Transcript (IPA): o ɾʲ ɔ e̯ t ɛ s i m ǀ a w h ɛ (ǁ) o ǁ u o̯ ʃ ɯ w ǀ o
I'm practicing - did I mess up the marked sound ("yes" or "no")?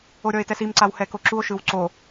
yes